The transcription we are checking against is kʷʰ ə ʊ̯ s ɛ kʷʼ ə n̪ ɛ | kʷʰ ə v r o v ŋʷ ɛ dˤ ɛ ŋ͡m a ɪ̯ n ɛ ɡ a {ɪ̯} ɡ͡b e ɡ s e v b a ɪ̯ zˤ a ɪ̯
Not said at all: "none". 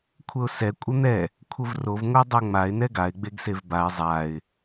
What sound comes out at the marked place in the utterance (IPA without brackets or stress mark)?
ɪ̯